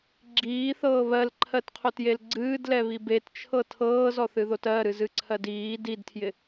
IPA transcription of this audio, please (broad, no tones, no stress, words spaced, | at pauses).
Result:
ɡ͡ǁiːθɤː βɜlǃʰɜtqʰotjel ɡ͡ǀɨːdlɛβi bett͡ʃʰɤ tʰɤːzɔθɨðot ɜɾɨzɨǀʰɜd iː didtʰjɪ